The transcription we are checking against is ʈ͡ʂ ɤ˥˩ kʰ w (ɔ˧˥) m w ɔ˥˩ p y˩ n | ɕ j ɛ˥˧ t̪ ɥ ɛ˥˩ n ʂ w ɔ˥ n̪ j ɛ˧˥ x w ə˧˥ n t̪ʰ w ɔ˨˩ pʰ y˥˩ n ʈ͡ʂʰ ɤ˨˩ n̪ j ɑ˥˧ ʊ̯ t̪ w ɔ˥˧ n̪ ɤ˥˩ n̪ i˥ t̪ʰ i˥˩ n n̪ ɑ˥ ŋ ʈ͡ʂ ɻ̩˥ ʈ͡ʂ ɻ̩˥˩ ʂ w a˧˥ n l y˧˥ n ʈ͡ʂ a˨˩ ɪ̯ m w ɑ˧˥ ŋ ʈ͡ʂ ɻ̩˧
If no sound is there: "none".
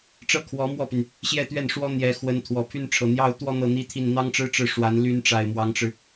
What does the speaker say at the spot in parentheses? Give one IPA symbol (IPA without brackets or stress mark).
ɔ˧˥